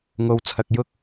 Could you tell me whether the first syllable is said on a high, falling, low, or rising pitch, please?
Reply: low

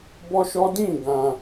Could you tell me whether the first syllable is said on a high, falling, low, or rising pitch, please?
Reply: high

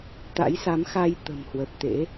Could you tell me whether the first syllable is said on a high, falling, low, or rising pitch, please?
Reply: rising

